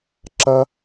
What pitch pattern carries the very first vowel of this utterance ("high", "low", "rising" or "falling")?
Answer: high